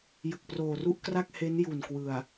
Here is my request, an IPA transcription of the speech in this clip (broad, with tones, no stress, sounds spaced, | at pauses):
j ɯ˨˩ k̚ p r oː˨˩ r u˥˩ ʔ k r a˥˩ k̚ h e˦˥ n j u˨˩ n k w ɯ˨˩ a̯